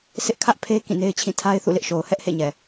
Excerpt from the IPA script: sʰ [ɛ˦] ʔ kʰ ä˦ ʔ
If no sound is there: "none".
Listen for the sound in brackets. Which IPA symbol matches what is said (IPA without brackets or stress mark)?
ɪ˦